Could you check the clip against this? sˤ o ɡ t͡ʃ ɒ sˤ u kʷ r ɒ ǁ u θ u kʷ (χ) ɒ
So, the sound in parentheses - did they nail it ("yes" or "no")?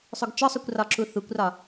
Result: no